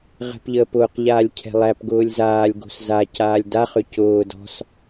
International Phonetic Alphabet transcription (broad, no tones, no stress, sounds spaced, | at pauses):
ʁ ɛ̤ p ʎ əː p ʊː q ʎ aː lʲ cʰ ɛ̤ lˠ æ p ɡ ʊː lʲ z aː lʲ ɡ o̤ s z a c aː lʲ d a χ ʏ c ʊː d ɔ̤ s